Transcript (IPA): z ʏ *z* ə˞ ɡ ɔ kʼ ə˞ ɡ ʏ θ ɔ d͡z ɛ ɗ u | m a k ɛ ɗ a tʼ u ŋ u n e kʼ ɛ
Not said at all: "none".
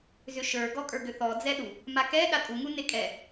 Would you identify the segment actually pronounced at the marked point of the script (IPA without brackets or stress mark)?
ʃ